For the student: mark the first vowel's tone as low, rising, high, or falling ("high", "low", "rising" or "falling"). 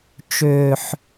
low